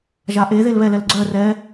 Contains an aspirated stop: no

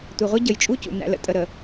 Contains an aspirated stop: no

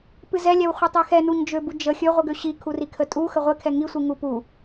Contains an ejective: yes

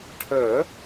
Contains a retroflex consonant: yes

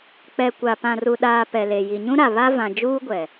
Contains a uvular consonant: no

